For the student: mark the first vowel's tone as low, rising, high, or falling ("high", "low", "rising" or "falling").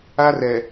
high